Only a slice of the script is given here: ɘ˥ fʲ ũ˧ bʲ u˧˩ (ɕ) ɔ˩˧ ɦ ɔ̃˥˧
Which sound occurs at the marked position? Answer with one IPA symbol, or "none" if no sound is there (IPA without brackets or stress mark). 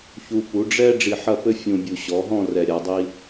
ɕ